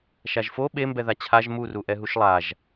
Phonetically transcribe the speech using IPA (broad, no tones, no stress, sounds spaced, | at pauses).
ʃ a ʒ f o ɓ e m b ɛ ð a t͡ɕʰ a ʒ m u r u ʔ ɛ ɦ u ʃ lˠ a ʒ